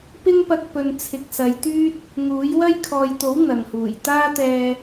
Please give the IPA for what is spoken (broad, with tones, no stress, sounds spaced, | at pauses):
p ɪ˥ ŋ p ɐ˧ k̚ p ɵ˨ n t͡sʰ ɪ˨ k̚ s ɐ˨˧ j t̪ yː˥ t̚ | ŋ uː˨˥ j w ɐ˥ j kʰ ɔː˨ j t̪ o˨˥ w n̪ ɐ˨ ŋ h uː˨˩ j t̪ aː˥ t̪ ɛː˧